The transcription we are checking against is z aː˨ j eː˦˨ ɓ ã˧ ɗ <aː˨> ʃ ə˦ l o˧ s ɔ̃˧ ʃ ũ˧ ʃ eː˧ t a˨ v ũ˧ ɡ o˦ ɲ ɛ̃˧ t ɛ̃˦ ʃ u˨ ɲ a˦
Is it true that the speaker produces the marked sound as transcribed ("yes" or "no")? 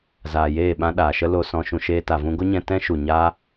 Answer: yes